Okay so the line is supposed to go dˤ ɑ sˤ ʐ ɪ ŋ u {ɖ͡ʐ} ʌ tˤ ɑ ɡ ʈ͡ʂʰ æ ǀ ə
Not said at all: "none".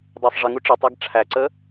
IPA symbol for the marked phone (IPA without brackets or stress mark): ʈ͡ʂ